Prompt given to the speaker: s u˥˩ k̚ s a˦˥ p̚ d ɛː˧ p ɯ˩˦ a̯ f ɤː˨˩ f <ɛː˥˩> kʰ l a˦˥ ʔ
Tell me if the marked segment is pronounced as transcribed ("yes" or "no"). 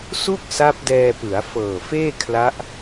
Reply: no